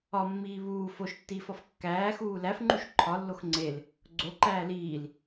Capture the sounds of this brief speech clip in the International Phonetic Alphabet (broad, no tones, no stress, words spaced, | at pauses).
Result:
ɒmːiː βuː foʃtːiːfɒf kːæːxuː læfŋ͡ǃuʃ ǃʰɒlːox ŋ͡ǀel | ɡ͡ǀoǃæː liːl